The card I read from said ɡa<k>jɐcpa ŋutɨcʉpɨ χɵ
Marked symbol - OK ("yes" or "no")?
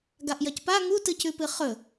no